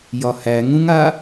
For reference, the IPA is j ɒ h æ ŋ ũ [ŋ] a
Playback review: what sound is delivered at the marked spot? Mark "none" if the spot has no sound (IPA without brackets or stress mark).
ŋ